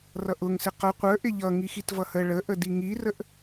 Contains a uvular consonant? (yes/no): yes